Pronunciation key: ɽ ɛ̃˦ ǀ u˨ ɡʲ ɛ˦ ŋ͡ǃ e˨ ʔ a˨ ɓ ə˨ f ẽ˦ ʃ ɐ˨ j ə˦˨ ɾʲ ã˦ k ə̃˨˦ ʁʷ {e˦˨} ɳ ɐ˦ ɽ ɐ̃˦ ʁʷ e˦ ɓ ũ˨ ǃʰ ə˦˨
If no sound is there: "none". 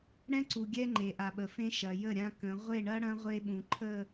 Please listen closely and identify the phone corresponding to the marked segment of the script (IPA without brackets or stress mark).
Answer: e˦˨